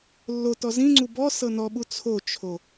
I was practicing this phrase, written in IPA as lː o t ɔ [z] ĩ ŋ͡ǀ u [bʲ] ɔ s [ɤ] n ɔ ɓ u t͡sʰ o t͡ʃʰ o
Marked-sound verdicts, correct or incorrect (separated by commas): correct, incorrect, correct